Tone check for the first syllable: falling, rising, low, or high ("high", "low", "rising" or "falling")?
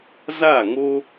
falling